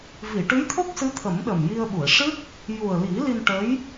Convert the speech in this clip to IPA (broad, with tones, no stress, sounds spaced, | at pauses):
v i˨˩˨ ʈ ɨ˧˥ j t̪ʰ o˦˥ k̚ s ɨ˧˥ t̪ʰ ə˨˩˦ m ɗ ə˨˩ m j i˧ ə̯ ɓ u˨˩˨ ə̯ ʂ ɨ˦˥ k̚ | j u˨˩ ə̯ l i˨˩˦ l i˧ n ʈ ə˧˥ j